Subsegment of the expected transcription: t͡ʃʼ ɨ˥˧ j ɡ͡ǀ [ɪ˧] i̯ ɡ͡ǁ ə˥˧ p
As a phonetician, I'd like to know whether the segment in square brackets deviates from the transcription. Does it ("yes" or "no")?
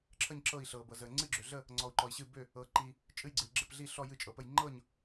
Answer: yes